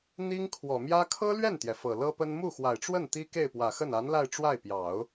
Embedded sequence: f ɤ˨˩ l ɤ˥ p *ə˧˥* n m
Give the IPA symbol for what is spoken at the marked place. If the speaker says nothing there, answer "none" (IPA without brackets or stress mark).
ə˥